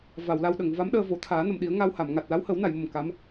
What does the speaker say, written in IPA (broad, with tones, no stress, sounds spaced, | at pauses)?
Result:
v a˨˩˨ w l a˧ w ɗ ə˨˩˨ ŋ v a˧˥ m ɗ əː˧ v o˨˩˦ t̪ʰ aː˨˩˦ n ə˨˩˨ m ɗ i˨˩˦ ə̯ ŋ a˧ w h a˨˩˨ m ŋ a˨˩ t̚ l a˧˥ w h ə˨˩˦ w n a˨˩˨ j m ə˨˩ m k a˧˥ m